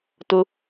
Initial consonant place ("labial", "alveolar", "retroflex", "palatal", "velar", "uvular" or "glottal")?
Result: alveolar